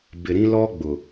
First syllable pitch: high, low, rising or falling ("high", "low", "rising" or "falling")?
low